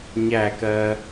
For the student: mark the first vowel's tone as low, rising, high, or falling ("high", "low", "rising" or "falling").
falling